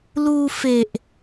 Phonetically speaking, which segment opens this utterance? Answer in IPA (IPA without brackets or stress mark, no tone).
l